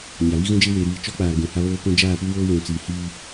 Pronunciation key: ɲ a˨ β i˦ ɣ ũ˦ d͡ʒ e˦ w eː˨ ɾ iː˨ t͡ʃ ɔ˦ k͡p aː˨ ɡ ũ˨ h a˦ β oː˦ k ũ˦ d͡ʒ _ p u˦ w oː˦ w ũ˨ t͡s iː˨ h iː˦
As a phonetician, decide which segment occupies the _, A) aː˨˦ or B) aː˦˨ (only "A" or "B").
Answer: B